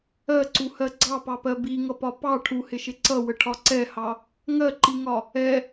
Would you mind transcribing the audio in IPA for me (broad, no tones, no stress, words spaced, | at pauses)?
ɜǀuhɜ ɡ͡ǀɑpɑpɜ biŋʌpɒ pɑ ʈʰuhɪʃɪ ǀʌwəʈʰɒ ǀɛhɑ | ŋɜǃiŋɒ | ɛ